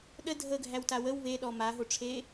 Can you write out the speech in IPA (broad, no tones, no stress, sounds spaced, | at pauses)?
ɗ ə dʱ ə ɡʱ æ w t a w ə w β e ɗ ɔ m a ɦ o ʈ͡ʂʰ e